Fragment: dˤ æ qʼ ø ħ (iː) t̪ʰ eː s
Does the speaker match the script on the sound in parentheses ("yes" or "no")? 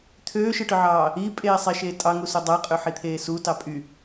no